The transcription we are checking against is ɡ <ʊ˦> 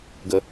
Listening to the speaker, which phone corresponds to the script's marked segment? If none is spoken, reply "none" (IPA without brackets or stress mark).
ə˦